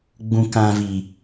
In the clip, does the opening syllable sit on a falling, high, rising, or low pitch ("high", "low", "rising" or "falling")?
low